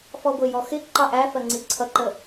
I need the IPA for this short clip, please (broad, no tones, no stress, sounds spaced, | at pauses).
f ɔ ɡʷ ɪ j ɔ x ɪ ǃ ɑ ʔ æ f ɜ ŋ͡ǀ i ǀʰ ʌ ǃ ə